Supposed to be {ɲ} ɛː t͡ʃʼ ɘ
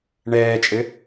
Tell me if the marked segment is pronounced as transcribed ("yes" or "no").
no